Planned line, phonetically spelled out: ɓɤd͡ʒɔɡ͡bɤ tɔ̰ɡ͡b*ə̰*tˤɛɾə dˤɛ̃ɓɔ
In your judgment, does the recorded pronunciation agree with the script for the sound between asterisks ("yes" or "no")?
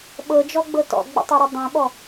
yes